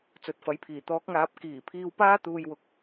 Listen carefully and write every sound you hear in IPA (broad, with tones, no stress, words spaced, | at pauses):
t͡sɵ˨˥t̚fɐ˨˥jpʰiː˨˩ t̪ɔː˨˥k̚ŋaː˨˥p̚ kiː˨˩ pʰiː˧wpaː˥ t̪uː˧jwʊ˨k̚